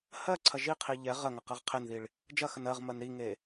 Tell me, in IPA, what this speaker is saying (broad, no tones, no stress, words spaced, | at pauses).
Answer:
hɜǀʰɐ ʒiqʰi ʎɛ ʁɜ ŋɐqɜʁqʰenðiɭ | d͡ʒɐxən ɜʁmɜn ɾiŋe